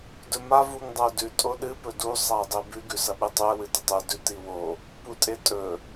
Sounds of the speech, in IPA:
dɵma vuŋdˤɐʊ̯dʉ tʼoɗɨ pɵdu sˤaɪ̯dˤebʉ ɡʉsɐɓɨtˤʉə̯ wɨtetˤe dʉtiwo | putʼetʼɵ

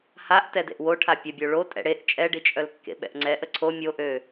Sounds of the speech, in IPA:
haʔ tɛdḛʔwoʈʰa pʲəbʲo ɭo tʼɛ̰ɽeʔ t͡ʃʼɛɖi t͡ʃʼœlkːḛɓɛ̰ʔŋ͡ǀɛ ʔəǀʰo mʲoʔø

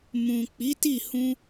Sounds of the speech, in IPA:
mũ˨ k͡pi˨˦ti˦˨hũ˧

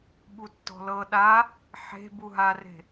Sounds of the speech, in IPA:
ɓutːɔ̤lɤ ɗa | ħe̤ buɦare̤

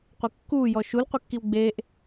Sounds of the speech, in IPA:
qʷikːuː jɔʃul qʷɪkːiwɡ͡beːʔ

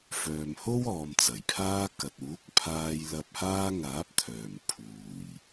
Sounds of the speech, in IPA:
fœː˨mho˥wɔː˨m t͡sɐ˨˩jpʰaː˥kɐ˨t̚ uː˨˥k̚pʰaː˧j lɐ˧p̚ haː˥ŋaː˨˥p̚t̪ʰœː˨˩m pʰuː˨˩j

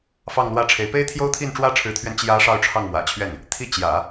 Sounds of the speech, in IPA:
fɑ˥˧ŋlwä˥˩ʈ͡ʂʰe˧˥ɪ̯ pe˥ɪ̯t̪ʰjo˥ʊ̯t̪ʰi˥˩n ʈ͡ʂwä˥ʈ͡ʂʰɻ̩˧˥t̪ʰɥɛ˧n t͡ɕjä˧˥ ʂɑ˥˧ʊ̯ʈ͡ʂʰɑ˥˩ŋmwä̰˨˩t͡ɕʰɥɛ˥˩n | t̪ʰi˥˩ t͡ɕjä̰˨˩˦

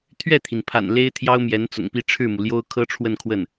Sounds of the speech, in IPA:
t̪ʰɥɛ˥˩t̪ʰi˩npʰa̰˨˩n le˥ɪ̯t̪ʰjɑ˥ʊ̯mjɛ˧˥n t͡sʊ̰˨˩ŋpi˥˧ʈ͡ʂʰɻ̩˥˩mu˩ ljo˥ʊ̯kʰɤ˥ʈ͡ʂʰwə˥˧nkʰwə˥˩n

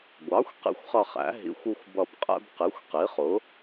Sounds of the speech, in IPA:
ɡʷɑ˩˥xʷ qḭ˦xʷχʌ˦˨χæ̰˩˥ ɦḭ˩˥xʷu˦xʷbʌ˦˨b qʼɛ̰˦bqi˩˥xʷ qi˩˥χʊ˩˥

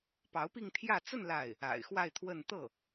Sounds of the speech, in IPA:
pɑ˧˥ʊ̯pi˥˧ŋt̪ʰjä˥˧ t͡sə˥˧n la˥˩ɪ̯ | a̰˨˩ɪ̯xwa˥˧ɪ̯t̪ʰwə˥˧n t̪ɤ˥˩

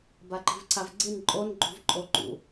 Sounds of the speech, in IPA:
baǃi̤vǀʰavɡ͡ǀin ǃʼon ɡ͡ǃṳvǃʼoǃṵ

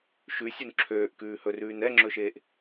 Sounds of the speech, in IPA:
ʃʉsʲun ǁʰøːʔkʉːhɵrʉːn ɛŋ͡ǁɵʃeːʔ

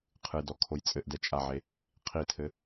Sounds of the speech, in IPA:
qʰɨdɔkʰoj t͡sʼɘʔdɛ t͡ʃʼaʕe | qʰitʰɘ

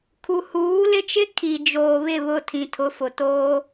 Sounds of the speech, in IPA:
kʰu˨huː˨˦lɪ˦t͡ʃɪ˦ kʰi˨ d͡ʒoː˨βɪ˦˨βʊ˦˨ tʰĩ˨tʰʊ˨˦fʊ˨ toː˦

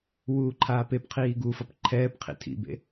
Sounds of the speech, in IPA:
wuːǃʰaːpepqʰiː ɡufʌp ǃʰɛːpqʰḭ tʰḭbḛ

